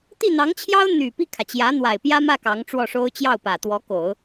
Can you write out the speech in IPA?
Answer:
t̪i˥˩n̪ɑ˧˥ŋt͡ɕʰjɑ˥ʊ̯ n̪y˨˩ pi˥˩kʰä˩t͡ɕjä˧˥ n̪wa˨˩ɪ̯pjä˥mä˥˩ kɑ˧˥ŋʈ͡ʂwɔ˥˩ʂo˥ʊ̯ t͡ɕjɑ˥˩ʊ̯pä˨˩t̪wɔ˧˥ ko˨˩˦ʊ̯

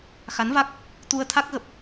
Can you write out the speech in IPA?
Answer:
xa˨˦nva˦˥k̚ | t̪u˧ə̯t̪ʰa˦˥k̚ ɣə˨˩p̚

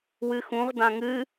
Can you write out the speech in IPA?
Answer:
wɨxũʁ dãŋɨ

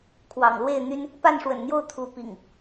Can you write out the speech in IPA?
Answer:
kʰwɑ̰˨˩ŋlwe˥˨ɪ̯n̪y˦n | pa˥˨nʂwə̰˨˩nn̪jo˥˨ʊ̯ t̪ʰu˨˦ pḭ˨˩ŋ

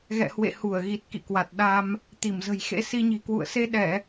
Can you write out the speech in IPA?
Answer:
ɣɛ̰˧˨hwḛ˧˨ hu˧˩ə̯ɣi˨˩t̚kḭ˧˨kwa˨˩t̚ ɗa˧m | t̪i˧˩mzə̤˨˩jxḛ˧˥ si˧ɲi̤˨˩kwṵ˧˨ə̯ se˧ɗɛ˧˩˨

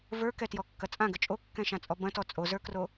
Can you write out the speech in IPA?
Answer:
və˞kɛtjɔkːɐ t͡sʼãɡə t͡ʃʼokːɛ̃ʃãt͡sʼɔ bɐ̃tɔ t͡sʼozə˞kro

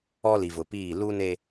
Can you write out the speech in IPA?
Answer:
ɔ˦li˨vʊ˨piː˦˨ lu˦ne˦

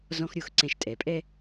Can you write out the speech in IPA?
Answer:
zɔ̃˦xɾʲo˧˩˧x ǀɛ̃˧˩ʃtʼɛ˩˥pʼɛ˦

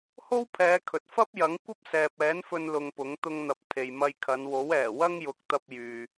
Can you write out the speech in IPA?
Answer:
ho˥wpʰɛː˨˧kʰɵ˨t̚ fɐ˥p̚jɐ˨˥ŋ kʷɐ˥p̚sɛː˨p̚ɛː˨˥nfɵ˧n lʊ˧ŋpʊ˨˥ŋ t̪ʊ˧ŋn̪ɐ˨p̚ t̪ʰe˨jmɐ˧jkʰɐ˨˧n wo˨˥wɛː˨˩wɐ˥ŋjʊ˨˥k̚ t̪ɐ˧p̚ jyː˨

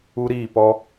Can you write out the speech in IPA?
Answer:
u˦ɾiː˦˨pɔ˦

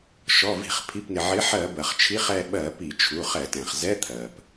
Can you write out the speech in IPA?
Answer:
ʃɔ˩˧˩ vi̤˧˩˧χpʰi˩˧˩pnɪ˩ʕɪ˨˥ ħɜ˧˩˧ bɜ˩χt͡ʃʰi˧˥˧χɛ˦˨ ɓɜ˧˩˧ pi˧˩˧t͡ʃʰu˩˧˩χɛ˧˩˧tɛ̃˩χ zɛ˧˥˧t̪ʰɜ˩p

